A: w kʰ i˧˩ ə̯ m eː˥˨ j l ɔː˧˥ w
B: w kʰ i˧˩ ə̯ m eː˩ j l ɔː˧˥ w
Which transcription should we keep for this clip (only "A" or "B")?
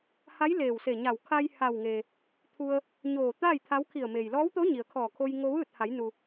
B